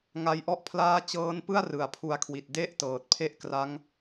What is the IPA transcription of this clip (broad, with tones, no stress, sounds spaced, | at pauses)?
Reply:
ŋ a˦˥ j ʔ ɔ˥˩ ʔ pʰ l aː˥˩ t͡ɕ ɤː˦˥ n p ɯ˥˩ a̯ r ɯ˨˩ a̯ pʰ u˧ a̯ kʰ w i˨˩ t̚ d e˥˩ ʔ t ɤː˨˩ t̚ pʰ e˥˩ ʔ k r a˦˥ ŋ